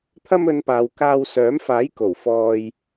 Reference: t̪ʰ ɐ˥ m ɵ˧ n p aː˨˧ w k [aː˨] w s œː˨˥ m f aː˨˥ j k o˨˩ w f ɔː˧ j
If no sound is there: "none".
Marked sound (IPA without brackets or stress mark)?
aː˧